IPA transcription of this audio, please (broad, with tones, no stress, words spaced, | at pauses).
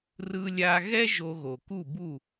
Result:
rɯ˧lʲa˧ɣɛ˥ ʒo˧ɣo˩ku˥˩bu˥˩